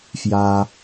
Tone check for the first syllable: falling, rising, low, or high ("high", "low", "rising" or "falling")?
low